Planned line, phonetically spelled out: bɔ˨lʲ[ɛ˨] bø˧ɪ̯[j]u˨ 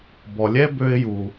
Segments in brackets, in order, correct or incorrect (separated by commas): incorrect, correct